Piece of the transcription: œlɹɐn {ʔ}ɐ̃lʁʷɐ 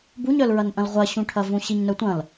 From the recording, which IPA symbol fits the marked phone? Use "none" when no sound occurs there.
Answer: ʔ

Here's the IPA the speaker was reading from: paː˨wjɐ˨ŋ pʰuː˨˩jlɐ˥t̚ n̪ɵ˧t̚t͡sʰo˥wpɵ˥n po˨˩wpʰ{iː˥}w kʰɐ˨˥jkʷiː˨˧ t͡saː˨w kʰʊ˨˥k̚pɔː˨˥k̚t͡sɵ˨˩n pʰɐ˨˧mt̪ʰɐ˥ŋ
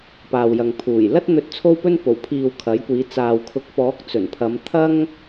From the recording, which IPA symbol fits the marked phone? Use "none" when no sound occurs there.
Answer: iː˨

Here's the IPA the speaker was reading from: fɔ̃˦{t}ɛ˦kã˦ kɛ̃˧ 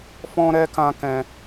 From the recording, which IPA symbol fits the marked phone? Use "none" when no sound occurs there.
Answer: ɾ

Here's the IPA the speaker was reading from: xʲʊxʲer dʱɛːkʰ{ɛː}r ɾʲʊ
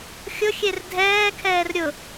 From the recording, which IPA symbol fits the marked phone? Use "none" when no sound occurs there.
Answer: ɛː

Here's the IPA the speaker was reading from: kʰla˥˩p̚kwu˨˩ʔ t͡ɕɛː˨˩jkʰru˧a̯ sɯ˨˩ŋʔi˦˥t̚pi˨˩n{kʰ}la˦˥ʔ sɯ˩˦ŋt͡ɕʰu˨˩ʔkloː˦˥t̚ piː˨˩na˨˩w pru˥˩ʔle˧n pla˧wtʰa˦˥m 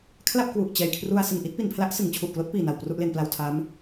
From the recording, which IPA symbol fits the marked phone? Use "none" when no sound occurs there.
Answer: pʰ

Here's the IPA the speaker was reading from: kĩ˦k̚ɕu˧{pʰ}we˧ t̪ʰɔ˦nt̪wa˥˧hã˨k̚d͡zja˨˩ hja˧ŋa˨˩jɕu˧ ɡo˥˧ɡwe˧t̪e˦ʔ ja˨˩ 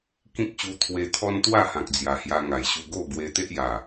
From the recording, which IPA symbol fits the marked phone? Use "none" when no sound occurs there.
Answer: t̪ʰ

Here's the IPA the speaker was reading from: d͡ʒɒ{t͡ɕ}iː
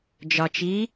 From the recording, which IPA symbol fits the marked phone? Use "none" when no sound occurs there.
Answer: t͡ʃ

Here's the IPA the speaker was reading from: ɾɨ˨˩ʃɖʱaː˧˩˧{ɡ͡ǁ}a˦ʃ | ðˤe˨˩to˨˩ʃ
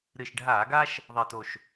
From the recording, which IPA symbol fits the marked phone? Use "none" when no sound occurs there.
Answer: ɡ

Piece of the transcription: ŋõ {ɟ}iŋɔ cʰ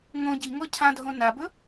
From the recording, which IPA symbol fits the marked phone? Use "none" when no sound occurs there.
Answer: ɟ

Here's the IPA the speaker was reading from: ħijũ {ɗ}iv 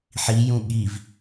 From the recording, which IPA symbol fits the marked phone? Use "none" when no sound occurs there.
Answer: ɠ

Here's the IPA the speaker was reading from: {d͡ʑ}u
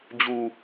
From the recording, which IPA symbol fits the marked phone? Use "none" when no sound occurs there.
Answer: d͡ʑ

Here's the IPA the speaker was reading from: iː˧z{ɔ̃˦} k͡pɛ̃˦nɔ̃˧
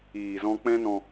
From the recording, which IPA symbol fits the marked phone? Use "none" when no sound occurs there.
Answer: ɔ̃˦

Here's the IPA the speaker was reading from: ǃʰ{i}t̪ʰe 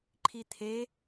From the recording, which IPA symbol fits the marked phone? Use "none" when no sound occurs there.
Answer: i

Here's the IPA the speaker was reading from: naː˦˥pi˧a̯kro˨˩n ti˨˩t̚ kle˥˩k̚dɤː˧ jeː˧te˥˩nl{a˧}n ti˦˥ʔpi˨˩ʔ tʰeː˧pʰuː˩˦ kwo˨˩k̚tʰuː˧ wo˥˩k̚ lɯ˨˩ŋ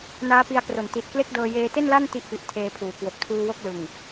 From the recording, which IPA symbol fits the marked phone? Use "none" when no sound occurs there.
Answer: a˥˩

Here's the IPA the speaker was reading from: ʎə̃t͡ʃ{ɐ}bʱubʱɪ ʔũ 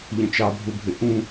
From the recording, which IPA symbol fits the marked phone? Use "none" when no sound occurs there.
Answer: ɑ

